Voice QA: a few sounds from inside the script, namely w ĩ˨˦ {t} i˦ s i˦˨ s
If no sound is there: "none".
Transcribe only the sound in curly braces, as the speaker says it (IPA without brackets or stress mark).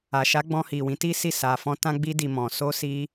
t